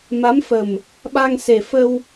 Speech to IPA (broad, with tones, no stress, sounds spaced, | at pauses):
m a˨˦ m f ə˨˩ m | ɓ a˧ ŋ s e˨˩ f ə˧ w